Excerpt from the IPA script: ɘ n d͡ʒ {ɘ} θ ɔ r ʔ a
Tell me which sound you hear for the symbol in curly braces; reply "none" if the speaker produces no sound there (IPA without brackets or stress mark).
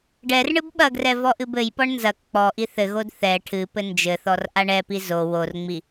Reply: ɘ